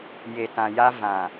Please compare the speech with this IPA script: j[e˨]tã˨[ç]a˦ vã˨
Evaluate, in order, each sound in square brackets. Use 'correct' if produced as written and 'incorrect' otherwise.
correct, incorrect: j

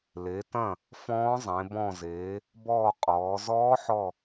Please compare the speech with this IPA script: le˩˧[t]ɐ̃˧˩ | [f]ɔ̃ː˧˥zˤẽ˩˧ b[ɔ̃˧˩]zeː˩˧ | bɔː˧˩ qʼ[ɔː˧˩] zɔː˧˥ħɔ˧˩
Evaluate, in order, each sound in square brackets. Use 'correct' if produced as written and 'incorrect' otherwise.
correct, correct, correct, incorrect: ɔː˩˧

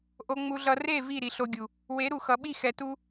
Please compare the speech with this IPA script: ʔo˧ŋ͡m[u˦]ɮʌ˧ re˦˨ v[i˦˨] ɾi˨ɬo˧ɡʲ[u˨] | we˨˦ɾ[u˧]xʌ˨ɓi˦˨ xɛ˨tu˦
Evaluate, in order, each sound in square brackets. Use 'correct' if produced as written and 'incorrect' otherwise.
incorrect: u˧, correct, correct, incorrect: u˨

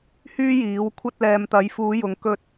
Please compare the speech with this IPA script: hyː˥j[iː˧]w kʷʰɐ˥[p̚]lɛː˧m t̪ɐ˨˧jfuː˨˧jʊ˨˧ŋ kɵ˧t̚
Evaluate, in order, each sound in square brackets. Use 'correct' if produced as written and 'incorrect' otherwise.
incorrect: iː˨˥, incorrect: t̚

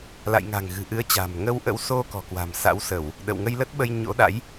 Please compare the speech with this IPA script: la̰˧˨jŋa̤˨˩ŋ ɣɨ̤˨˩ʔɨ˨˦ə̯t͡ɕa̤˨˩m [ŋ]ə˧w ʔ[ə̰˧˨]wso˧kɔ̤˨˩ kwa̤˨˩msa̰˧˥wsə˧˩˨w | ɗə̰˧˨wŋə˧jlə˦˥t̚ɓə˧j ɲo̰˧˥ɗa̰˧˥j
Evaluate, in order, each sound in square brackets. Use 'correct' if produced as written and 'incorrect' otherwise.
correct, incorrect: ə̰˧˥

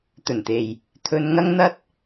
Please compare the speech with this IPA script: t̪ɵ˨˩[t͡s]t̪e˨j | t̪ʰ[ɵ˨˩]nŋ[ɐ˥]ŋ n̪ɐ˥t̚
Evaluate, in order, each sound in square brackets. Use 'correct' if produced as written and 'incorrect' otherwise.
incorrect: n, incorrect: ɵ˧, correct

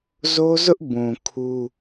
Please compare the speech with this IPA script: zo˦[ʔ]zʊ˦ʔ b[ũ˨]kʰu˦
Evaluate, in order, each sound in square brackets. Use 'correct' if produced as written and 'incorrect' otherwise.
incorrect: none, correct

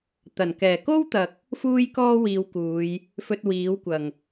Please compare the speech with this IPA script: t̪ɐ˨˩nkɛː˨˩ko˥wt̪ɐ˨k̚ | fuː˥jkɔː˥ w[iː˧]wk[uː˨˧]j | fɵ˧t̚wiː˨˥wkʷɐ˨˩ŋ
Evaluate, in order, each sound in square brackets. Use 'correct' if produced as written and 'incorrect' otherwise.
correct, correct

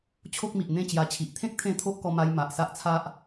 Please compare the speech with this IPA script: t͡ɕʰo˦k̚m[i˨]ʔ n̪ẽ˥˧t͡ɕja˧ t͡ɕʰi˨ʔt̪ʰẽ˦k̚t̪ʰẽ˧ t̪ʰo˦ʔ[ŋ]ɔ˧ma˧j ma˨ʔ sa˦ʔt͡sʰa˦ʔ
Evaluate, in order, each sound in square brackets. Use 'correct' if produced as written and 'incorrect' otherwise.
correct, incorrect: k

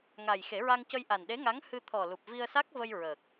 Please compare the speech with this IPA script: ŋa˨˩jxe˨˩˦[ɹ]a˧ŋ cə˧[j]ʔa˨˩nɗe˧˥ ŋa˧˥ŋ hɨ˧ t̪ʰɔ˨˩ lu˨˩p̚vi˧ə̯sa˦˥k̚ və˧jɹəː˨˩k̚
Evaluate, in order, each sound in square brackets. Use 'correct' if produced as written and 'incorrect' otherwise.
correct, correct

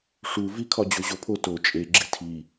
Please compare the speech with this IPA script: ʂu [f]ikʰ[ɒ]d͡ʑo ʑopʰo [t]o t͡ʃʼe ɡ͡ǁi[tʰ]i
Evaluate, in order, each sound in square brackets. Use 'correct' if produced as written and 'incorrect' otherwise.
incorrect: v, correct, correct, correct

